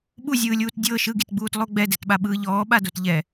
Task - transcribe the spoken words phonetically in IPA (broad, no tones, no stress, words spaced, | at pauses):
ɓuzʲɯːlʲuːt dʲɤ ʃɯɡitɡ͡buːtlˠo ɡ͡bɛdɛtɓaɓɯː ʎɔːɓadot ʎɛ